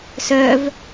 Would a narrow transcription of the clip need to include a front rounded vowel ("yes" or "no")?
yes